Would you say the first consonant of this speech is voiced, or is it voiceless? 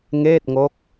voiced